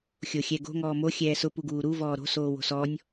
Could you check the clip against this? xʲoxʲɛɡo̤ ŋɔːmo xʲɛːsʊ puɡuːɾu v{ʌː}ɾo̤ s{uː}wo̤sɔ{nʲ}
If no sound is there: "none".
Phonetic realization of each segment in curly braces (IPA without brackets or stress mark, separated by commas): ɔː, oː, nʲ